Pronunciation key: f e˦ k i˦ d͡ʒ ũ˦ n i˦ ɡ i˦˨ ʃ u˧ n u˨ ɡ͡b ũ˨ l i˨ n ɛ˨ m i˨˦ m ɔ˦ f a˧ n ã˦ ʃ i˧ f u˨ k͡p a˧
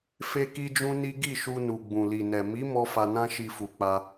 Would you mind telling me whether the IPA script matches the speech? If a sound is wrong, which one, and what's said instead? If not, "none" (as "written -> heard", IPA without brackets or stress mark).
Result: none